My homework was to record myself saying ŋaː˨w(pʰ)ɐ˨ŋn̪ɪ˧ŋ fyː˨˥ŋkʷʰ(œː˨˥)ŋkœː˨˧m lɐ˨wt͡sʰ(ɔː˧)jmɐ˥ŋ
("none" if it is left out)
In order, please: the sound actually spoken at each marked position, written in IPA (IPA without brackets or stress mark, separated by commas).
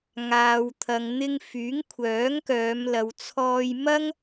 t̪ʰ, œː˨˥, ɔː˧